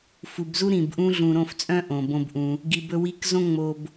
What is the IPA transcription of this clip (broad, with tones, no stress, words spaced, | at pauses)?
fu˨bzu˦ ɾĩ˨bʔũ˦ ɮũ˨ɾõ˦˨ft͡sʼœ̃˦ ʔõ˨bõ˦bʔũ˧ | ɡi˨bɵ˧ wi˧kzõ˦ ŋ͡mo˧b